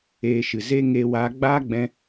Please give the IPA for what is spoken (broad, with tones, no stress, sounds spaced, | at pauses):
eː˧ ʃ ɨ˨ z e˦ ŋ eː˧ w aː˨˦ ɡ͡b aː˦ ɡ͡b ɛ̃˧